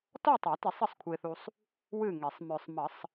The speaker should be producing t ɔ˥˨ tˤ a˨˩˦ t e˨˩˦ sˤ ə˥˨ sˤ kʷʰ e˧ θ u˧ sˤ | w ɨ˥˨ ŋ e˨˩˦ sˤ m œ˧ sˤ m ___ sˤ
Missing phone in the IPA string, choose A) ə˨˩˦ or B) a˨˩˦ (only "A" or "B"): A